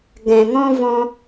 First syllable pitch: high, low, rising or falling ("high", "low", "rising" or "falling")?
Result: low